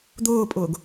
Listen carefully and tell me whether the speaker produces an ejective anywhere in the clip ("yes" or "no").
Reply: yes